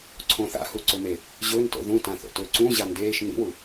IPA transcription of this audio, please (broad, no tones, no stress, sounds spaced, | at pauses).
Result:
ǀʰ õ θ a̰ h u ǀ ɵ m e | ʑ ɵː n t o̰ ð ũ t ã θ o̰ t ɵː ǀ ũ ʑ a n d eː ʃ n ḭ w u